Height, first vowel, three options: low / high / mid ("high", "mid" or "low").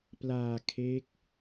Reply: low